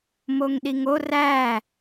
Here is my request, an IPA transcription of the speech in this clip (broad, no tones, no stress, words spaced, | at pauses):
moŋɗiŋo ræ